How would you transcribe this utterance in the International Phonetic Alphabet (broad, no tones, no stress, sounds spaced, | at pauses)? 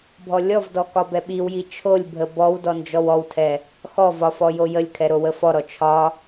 bʱ ɔ lʲ ɔ v d ɔ k ɒ b ɛ ɓ i w j i t͡ʃʰ o lʲ bʱ ə b ɔ w d ɔ n d͡ʒ ɔ w ɔ w tʰ ɛ | x ɔ v ɒ f ɔ j o j ə lʲ kʰ ɛ ɾ o w ə f ɔ ɾ ɔ t͡ʃʰ ɒ